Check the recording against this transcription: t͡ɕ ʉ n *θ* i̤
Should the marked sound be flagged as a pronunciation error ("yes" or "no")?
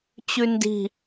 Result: yes